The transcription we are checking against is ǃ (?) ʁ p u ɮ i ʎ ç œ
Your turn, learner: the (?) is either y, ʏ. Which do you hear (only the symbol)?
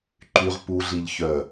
y